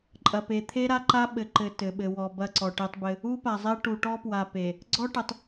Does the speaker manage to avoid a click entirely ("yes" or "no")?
no